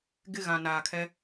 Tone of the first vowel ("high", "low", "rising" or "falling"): falling